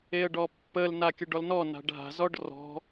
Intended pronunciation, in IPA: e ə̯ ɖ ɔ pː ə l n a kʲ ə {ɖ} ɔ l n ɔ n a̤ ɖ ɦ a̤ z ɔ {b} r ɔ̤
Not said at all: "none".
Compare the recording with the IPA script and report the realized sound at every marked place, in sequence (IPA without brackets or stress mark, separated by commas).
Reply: ɖ, ɖ